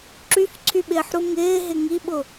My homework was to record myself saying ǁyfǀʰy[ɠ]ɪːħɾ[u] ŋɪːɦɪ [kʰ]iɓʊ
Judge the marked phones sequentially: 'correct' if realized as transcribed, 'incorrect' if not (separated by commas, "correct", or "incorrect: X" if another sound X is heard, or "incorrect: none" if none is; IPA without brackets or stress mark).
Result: incorrect: ɓ, correct, incorrect: ŋ